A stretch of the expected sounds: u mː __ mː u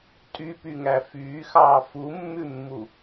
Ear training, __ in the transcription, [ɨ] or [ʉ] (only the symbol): ʉ